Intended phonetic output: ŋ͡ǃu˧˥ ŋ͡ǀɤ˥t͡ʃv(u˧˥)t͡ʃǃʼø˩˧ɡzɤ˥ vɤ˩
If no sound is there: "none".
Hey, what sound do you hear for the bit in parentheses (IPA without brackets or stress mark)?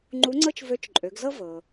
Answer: ø˧˥